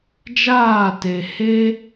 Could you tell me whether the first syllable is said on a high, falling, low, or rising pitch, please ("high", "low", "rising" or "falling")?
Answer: falling